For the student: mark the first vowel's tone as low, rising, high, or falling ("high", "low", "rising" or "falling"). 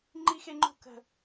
high